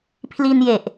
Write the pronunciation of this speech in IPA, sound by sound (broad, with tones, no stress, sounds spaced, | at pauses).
pʰ l i˧ n j e˨˩ ʔ